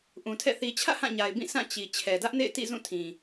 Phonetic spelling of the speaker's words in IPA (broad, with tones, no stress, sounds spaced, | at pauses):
ʔ ũ˨ tʰ ɛ̰˦˨ θ i˨ t͡ɕʰ ä̰˦˨ h ã˦˨ ɲ a˨ ɪ̯ b ĩ˦˨ s ã˦˨ t͡ɕ i˨ t͡ɕʰ ɛ˨ d ä˦ ʔ n ḛ˦˨ ɪ̯ t ḭ˦˨ z ũ˦˨ tʰ ĩ˨